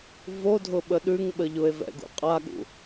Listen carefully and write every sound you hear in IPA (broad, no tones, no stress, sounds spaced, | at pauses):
v o dʱ ʊ ɓ ə ɗ ʉ ŋ ɓ ə ʎ ʊ e̯ v ɛ̰ ɡ ṵ qʼ a ɠ ṵ